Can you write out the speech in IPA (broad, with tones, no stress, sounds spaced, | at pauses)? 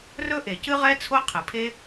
r ɵ˥ ʔ e˩ c ɨ˥ ʁ ɛ˥ t͡sʰ o˥ qʰ ɨ˩ pʰ e˥